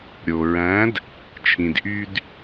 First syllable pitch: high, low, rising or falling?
low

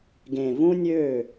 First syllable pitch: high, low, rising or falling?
low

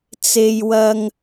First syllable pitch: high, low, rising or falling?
high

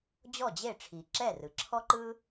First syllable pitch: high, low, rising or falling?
falling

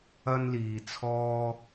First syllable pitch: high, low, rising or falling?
high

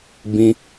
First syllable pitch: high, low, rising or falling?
high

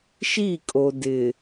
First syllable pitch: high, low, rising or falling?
falling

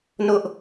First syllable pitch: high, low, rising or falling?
high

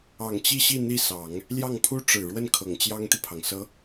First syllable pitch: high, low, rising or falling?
low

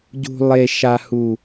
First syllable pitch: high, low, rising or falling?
low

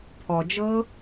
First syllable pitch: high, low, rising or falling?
low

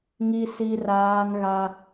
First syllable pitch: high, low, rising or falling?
high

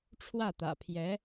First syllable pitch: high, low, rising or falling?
falling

